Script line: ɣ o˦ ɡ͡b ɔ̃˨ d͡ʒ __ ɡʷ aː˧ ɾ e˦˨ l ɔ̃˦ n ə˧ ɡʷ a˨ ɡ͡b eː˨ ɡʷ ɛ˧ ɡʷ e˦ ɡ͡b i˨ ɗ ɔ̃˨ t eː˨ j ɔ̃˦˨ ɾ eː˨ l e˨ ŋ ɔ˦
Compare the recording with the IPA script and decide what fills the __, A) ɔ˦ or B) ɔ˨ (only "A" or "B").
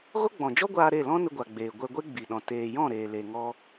A